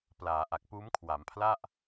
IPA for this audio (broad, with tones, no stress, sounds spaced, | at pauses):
p l aː˩˦ ʔ a˨˩ k̚ p uː˦˥ m kʰ w a˩˦ m pʰ l a˥˩ ʔ